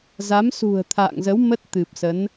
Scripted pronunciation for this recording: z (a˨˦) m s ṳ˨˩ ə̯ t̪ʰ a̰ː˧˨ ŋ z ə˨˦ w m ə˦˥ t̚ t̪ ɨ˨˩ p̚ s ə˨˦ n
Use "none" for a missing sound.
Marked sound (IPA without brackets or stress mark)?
a˨˦